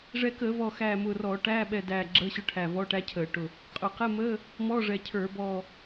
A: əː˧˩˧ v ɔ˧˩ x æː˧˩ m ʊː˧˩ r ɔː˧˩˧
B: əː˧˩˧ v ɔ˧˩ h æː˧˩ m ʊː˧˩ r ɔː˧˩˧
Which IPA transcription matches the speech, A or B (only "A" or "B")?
A